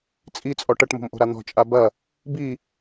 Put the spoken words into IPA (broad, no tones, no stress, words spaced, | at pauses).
t͡sʼit͡sʼɔ ʈɐʈmo̤mʔo̤ɾa n̪ɔ̤t͡ʃʼa bɐ | bi